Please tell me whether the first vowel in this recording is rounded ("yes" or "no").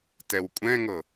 no